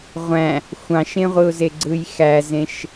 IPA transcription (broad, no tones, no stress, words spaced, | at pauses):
ʁʷæ̃ | xʷɑ̃ʃẽʁʷɯʊ̯ze ɡ͡ǀɯjxæzẽʃ